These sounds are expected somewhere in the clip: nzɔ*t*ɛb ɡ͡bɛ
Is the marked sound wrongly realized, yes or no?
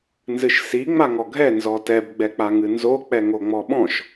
no